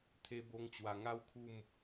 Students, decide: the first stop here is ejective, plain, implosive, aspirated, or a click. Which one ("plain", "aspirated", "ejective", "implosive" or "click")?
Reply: aspirated